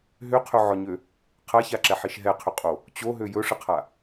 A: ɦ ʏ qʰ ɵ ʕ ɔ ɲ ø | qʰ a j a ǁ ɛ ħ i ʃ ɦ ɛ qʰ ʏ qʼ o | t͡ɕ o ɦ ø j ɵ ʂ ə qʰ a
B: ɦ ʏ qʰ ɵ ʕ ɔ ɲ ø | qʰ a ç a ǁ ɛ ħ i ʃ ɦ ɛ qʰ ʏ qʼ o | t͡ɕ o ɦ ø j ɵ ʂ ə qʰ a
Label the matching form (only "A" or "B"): B